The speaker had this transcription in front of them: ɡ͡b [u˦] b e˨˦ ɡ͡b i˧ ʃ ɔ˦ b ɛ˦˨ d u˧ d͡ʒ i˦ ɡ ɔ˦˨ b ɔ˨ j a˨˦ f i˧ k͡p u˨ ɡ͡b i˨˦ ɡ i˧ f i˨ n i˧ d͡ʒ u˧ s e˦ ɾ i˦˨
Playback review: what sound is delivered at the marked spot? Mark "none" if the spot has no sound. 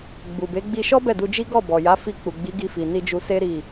u˨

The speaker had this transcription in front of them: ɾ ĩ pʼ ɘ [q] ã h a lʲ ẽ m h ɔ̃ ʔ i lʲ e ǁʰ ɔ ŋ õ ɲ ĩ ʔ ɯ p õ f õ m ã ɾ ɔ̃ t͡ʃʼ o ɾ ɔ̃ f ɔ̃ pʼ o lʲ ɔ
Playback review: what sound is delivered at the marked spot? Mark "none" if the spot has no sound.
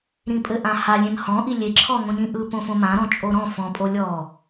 ʔ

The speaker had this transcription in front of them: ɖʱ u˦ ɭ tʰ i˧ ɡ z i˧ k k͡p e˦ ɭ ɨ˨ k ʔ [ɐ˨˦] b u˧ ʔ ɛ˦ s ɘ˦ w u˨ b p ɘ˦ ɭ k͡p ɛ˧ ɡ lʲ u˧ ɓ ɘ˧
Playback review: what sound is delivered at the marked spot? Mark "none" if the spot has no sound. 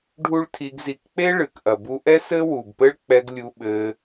ɐ˨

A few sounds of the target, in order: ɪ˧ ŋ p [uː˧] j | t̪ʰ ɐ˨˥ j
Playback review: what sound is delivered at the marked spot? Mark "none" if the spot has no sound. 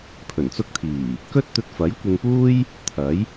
uː˥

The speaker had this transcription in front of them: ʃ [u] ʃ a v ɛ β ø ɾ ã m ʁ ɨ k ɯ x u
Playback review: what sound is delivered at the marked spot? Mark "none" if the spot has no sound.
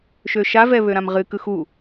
ø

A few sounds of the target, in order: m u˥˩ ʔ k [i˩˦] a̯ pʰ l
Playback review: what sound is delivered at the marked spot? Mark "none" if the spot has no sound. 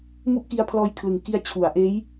i˦˥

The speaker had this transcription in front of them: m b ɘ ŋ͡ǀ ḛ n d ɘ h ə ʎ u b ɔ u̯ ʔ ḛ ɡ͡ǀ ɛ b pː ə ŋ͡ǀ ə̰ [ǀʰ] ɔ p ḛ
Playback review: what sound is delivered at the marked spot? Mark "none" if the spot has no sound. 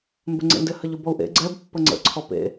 ǀʰ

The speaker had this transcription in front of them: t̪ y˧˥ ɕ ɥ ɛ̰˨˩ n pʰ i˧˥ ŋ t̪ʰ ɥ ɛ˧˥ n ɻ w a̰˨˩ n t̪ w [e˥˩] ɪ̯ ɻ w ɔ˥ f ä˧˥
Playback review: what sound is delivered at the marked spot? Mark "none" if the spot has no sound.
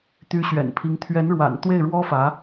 e˥˩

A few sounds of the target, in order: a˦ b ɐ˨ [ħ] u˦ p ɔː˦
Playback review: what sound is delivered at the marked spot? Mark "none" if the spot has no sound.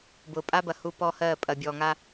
h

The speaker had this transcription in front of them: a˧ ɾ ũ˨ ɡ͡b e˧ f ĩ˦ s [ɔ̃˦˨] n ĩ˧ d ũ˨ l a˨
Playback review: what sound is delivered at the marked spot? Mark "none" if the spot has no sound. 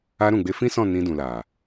ɔ̃˦˨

